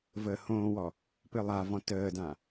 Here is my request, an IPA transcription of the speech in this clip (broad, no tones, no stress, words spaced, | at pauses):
vəːhõːwɔ | pɨlˠavɔ̃ təːdã